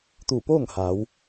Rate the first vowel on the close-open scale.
close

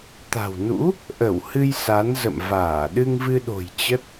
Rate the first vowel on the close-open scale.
open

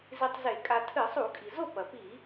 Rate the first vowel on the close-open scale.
close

